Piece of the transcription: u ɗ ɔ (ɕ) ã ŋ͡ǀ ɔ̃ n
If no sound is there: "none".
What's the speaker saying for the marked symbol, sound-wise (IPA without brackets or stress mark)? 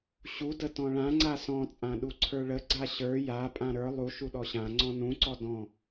ɕ